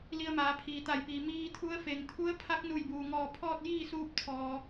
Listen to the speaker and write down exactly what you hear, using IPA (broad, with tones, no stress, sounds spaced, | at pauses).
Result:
l i˧ ə̯ m aː˩˧ pʰ iː˩ t̪ a˧˩ j p iː˩ m iː˧ t̪ʰ u˧˥ ə̯ f e˩ ŋ t̪ʰ u˧˥ ə̯ pʰ a˧˥ k̚ n u˧˩ j b uː˩ ŋ ɔː˧˩ pʰ ɔː˥˨ t̚ j iː˥˨ s uː˧ p̚ t̪ʰ ɔː˩